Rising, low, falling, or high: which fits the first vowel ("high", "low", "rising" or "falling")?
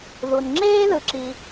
low